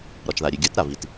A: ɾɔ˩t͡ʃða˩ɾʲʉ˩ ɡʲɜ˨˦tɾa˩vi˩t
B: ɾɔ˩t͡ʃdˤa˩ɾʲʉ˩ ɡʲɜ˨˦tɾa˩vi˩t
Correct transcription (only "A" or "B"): A